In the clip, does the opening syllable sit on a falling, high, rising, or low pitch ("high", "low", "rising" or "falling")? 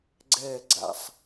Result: falling